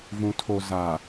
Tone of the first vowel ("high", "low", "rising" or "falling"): low